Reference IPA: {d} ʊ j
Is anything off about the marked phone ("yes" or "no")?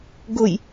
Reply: yes